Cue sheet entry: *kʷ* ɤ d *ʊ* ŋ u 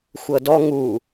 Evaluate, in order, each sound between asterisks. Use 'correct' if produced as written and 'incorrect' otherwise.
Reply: incorrect: xʷ, incorrect: ɔ

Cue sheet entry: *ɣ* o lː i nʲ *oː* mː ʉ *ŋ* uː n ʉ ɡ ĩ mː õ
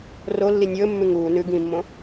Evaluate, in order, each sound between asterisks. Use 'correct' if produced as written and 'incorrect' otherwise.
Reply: incorrect: r, incorrect: ɵː, correct

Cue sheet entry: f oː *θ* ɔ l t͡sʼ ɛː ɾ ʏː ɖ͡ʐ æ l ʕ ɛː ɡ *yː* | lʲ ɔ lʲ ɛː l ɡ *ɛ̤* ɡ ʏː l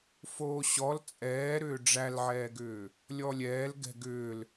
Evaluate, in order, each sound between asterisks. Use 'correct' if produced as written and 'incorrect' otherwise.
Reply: incorrect: ɕ, incorrect: ʏː, correct

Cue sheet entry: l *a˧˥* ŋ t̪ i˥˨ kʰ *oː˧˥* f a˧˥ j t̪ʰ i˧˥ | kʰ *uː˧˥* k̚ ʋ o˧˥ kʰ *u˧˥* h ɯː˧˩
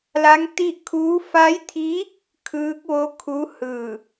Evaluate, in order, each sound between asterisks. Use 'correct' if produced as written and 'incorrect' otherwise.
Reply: correct, incorrect: uː˧˥, incorrect: ɯː˧˥, correct

